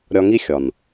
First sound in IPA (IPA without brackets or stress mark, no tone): ɾʲ